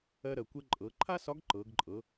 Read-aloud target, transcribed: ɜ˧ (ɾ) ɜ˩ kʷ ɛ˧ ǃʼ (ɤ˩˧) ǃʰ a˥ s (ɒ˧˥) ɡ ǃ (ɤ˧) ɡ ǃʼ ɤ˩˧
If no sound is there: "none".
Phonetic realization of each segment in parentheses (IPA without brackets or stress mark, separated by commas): ɾ, ɤ˩˧, ɒ˧˥, ɤ˩˧